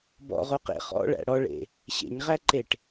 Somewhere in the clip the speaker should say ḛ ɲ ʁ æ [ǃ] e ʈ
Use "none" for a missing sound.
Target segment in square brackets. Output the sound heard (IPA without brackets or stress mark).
ǃ